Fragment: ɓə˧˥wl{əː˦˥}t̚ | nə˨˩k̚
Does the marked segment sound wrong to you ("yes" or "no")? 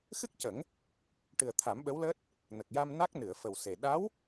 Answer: no